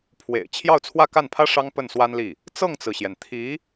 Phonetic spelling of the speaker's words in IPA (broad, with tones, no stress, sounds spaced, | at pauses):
pʰ w ḛ˨˩ ɪ̯ t͡ɕʰ j ɑ˥˧ ʊ̯ t͡sʰ w ä˥˧ k a˥˩ n pʰ ä˥ ʂ ɑ˥ ŋ p ə˥˩ n s w a˥ n l i˥˩ | t͡s ɤ˥˩ ŋ t͡s ɹ̩˩ ɕ j ɛ˩ n t̪ʰ i˧˥